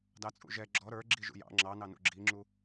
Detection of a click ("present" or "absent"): present